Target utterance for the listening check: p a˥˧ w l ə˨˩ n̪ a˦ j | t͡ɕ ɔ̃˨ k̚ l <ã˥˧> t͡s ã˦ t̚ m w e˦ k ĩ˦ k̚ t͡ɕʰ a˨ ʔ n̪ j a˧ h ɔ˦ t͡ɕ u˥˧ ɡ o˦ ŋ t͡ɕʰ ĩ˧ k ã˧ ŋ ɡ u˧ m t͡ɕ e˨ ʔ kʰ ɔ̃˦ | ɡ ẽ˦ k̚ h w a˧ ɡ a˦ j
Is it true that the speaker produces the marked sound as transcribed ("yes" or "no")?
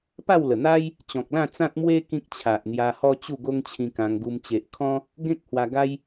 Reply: yes